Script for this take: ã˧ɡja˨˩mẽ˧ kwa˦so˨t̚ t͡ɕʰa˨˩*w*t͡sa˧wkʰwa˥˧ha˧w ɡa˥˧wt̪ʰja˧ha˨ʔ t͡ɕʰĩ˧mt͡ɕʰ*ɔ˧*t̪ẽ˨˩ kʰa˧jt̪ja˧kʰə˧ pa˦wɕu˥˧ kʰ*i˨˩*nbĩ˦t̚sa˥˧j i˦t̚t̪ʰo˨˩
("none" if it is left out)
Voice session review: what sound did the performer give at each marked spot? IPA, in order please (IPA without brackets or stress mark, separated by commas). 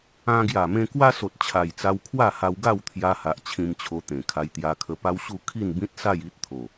j, o˧, i˥˧